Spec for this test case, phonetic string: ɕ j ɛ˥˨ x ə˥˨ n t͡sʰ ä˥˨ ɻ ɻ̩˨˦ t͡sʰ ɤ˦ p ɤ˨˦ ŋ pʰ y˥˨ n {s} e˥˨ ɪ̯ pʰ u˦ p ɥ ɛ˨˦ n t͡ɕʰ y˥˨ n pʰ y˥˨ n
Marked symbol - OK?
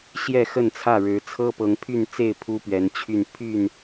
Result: no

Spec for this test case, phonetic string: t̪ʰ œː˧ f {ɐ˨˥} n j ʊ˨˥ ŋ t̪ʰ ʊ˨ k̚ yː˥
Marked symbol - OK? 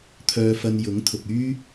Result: no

